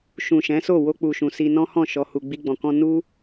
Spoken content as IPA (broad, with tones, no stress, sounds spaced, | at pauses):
ʃ ũ˨ ʃ ɛ̃˨˦ s o˦˨ w o˧ k͡p u˨ ʃ ũ˨ s i˧ n ɔ̃˦ h ɔ̃˦˨ ʃ ɔ˧ h u˧ ɡ͡b i˦ ɡ͡b ɔ̃˧ k ɔ̃˦ n u˦